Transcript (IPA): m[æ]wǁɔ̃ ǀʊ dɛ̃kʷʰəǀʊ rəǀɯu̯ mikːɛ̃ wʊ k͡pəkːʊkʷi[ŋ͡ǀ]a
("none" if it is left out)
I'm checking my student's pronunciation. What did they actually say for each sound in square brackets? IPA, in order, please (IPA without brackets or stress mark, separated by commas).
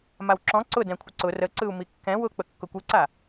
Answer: a, ǀ